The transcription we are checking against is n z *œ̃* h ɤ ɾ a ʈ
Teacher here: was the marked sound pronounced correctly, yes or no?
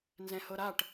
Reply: no